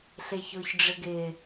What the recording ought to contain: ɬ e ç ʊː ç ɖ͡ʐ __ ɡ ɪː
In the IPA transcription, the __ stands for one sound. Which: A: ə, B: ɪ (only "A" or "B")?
B